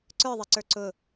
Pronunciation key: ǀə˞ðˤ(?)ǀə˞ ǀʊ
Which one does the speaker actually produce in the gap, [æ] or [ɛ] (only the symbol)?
ɛ